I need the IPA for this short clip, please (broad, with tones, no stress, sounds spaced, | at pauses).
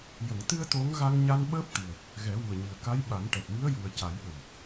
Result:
j ə˨˩˨ ŋ t̪ ɨ˧ ə̯ t̪ o˧˥ ŋ ɣ a˧ ŋ ɲ a˧ n ɓ əː˦˥ p̚ t̪ ɨ˨˩ ə̯ | ɣ ɛ˨˩˦ w u˨˩ ə̯ ɲ i˨˩ ə̯ k a˧˥ j ɓ a˨˩˦ n ʈ ɛ˨˩ t̚ m i˧˥ ə̯ j u˨˩ ə̯ c a˨˩˦ j ɓ ə˨˩ m